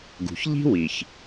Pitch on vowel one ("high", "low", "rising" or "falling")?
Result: low